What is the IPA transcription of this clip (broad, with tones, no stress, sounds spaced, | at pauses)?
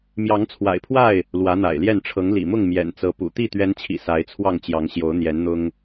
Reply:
m j ɑ˨˦ ŋ t͡sʰ w a̰˨˩ ɪ̯ pʰ w a˥˨ ɪ̯ | l w ä˨˦ n̪ a̰˨˩ ɪ̯ l j ɛ˥˨ n ʈ͡ʂʰ ɤ˨˦ ŋ l ḭ˨˩ m ʊ˥˨ ŋ m j ɛ̰˨˩ n t͡s ɤ˨˦ p ṵ˨˩ t̪ i˥˨ t̪ ɥ ɛ˨˦ n t͡ɕʰ ḭ˨˩ s a˨˦ ɪ̯ t͡sʰ w ɑ˥˨ ŋ t͡ɕ j ɑ˨˦ ŋ ɕ j o˨˦ ʊ̯ n̪ j ɛ˨˦ n n̪ ʊ˦ ŋ